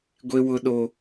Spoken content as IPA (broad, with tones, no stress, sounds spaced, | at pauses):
ɡʷ e˦ w ʊ˦ ɗ o˦